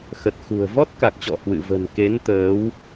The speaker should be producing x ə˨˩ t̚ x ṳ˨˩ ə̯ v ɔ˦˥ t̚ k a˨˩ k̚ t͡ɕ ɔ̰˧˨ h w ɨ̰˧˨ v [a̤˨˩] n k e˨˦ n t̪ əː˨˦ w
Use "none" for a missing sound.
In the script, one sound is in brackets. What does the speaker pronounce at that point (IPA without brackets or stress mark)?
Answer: ə̤˨˩